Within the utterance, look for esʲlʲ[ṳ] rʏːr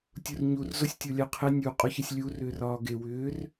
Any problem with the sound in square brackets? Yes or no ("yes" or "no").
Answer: yes